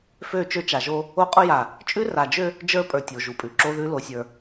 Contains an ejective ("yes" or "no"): yes